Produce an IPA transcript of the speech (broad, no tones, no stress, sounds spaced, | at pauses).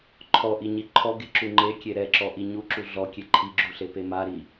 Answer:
ǃʰ ɔ ʔ i ɲ i ǃʰ ɔ ɡ e ǁ u ŋ͡ǃ e kʲ e ɾ ɛ ǁ ɔ ʔ i ɲ u ǁ u ɮ ɔ kʲ e ǃʰ i ɡ͡ǁ u ɬ e p e m a ɾ i